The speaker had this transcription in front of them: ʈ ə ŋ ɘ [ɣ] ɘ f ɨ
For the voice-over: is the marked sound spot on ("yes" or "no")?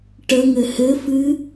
no